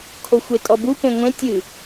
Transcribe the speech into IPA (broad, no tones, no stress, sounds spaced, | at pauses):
kʰ o xʷ e tʼ ɔ b u p ẽ ŋʷ ẽ tʲ ɨ